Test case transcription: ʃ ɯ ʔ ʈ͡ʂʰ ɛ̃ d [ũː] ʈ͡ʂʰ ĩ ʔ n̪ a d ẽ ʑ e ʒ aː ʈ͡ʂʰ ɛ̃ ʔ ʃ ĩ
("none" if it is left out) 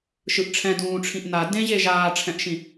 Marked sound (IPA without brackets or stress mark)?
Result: ũː